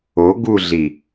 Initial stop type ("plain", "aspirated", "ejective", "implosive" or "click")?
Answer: plain